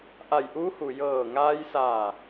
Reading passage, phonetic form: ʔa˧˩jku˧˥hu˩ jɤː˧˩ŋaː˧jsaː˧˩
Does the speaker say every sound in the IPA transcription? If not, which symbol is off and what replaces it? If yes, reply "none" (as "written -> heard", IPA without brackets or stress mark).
k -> ʔ